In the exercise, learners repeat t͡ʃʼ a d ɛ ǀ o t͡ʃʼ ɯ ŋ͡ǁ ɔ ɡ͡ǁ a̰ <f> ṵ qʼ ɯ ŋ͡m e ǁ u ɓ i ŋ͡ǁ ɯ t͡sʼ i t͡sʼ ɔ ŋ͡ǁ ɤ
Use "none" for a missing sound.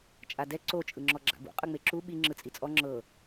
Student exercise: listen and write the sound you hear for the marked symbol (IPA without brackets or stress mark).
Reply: b